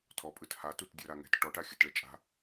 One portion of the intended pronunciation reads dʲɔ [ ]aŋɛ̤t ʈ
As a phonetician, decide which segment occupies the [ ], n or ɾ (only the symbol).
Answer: ɾ